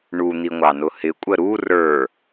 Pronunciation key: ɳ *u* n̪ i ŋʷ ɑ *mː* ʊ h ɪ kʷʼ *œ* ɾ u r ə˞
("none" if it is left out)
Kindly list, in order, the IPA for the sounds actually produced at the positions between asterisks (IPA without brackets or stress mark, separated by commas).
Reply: u, n, ə